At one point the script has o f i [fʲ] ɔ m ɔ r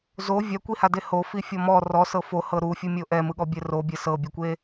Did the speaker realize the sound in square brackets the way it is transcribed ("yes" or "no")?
yes